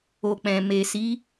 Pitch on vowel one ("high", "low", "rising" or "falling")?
low